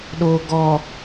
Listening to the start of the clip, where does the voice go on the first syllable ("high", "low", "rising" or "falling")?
low